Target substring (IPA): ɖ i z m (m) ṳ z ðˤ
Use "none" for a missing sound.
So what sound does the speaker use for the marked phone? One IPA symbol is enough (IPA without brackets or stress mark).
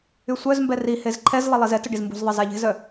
b